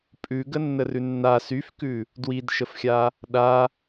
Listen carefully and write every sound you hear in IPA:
pʼ ʉ ɡ ə nː ə r ʉ nː a s y f k ʉ | d w i d ʃ ə f xʲ a | ɗ a

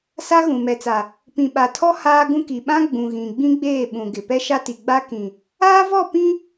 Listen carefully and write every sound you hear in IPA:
s a˦ ɣ ũ˨ m ɛ˨ t͡s a˨ | p ĩ˨ ɓ a˨ tʰ ɔ˦ h aː˦ ɡ ũ˦ k i˨ ɓ ã˦ ɡ͡b ũ˨ ɣ ĩ˨ ɡ͡b ĩ˦ ɡ͡b eː˦˨ ɓ ũ˨ ɡ ɪ˨ p ɛ˦ ʃ a˦ t i˨ ɡ͡b a˦ k ĩ˨ | aː˦ v ɔ˦˨ p ĩ˦

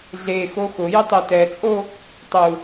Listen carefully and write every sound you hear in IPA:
ɮ e x o x ʊ j ʊ tˤ e t ɛ t͡sʼ o | tˤ u

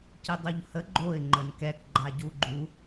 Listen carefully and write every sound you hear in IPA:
c i dˤ u ʎ h ə ɡ͡ǃ o ɪ̯ ŋ͡ǃ ə n k ɛ k ɡ͡ǃ a ɟ u ɡ͡ǃ u

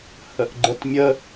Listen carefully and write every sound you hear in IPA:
h ə ʔ ɡ͡ǃ ə t mʲ ə

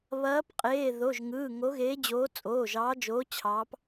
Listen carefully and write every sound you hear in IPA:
β ɐː˨˦ p qʼ eː˩˧˩ ð o˩˧˩ ʒ ŋ ɯː˩˧˩ ŋ o˨˦ ɣ eː˨˦ d͡ʑ oː˨˦ t͡sʼ oː˩˧˩ ʒ ɑː˨˦ d͡ʒ oː˨˦ t͡ɕʰ ɑː˨˦ p

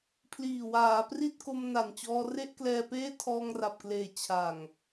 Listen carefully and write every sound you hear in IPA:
pʰ l iː˨˩ w aː˩˦ p r i˥˩ t̚ k o˧ m n a˨˩ n t͡ɕ ɔː˧ r e˥˩ ʔ k l ɛː˧ p eː˥˩ tʰ ɔː˧ ŋ r a˨˩ p̚ k l eː˨˩ t͡ɕʰ a˨˩ ŋ

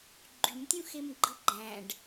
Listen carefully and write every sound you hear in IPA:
ɡ͡ǃ y m tʲ ũ x e m ɡ͡ǃ ɯ ɡ͡ǃ æ̃ ɖ

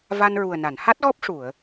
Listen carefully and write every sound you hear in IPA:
v a˧ n ɹ u˨˩ ə̯ n a˨˩˨ n h a˦˥ t̚ ɣ ɔ˦˥ p̚ ʂ u˨˩˨ ə̯

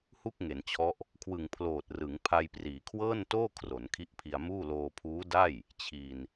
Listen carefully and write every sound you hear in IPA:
h u˥˩ k̚ ŋ e˩˦ n t͡ɕʰ ɔ˦˥ ʔ | kʰ w ɯ˨˩ ŋ pʰ l oː˨˩ t̚ r ɯ˩˦ ŋ pʰ a˧ j p r iː˩˦ kʰ w ɤː˥˩ n t oː˥˩ kʰ r o˩˦ n kʰ i˦˥ ʔ pʰ i˧ a̯ m uː˥˩ l oː˧ pʰ uː˦˥ d a˥˩ j | t͡ɕʰ i˧ n

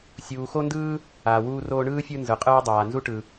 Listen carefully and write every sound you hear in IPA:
sʲ uː˨ x o˥ n d ɯː˥ | aː˩ w uː˦ r oː˦ ɳ ɯː˥ fʲ ɯ˦ n z ɯ˩ qʼ ɯː˦ dˤ aː˩ n z u˥ ʈ ɯ˩

